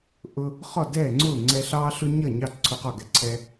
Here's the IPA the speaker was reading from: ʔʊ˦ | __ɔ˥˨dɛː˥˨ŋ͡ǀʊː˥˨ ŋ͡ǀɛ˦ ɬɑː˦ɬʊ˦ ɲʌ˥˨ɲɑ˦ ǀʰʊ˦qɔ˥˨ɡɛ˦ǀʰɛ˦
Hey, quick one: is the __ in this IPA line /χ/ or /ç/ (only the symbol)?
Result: χ